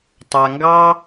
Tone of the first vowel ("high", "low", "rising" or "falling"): low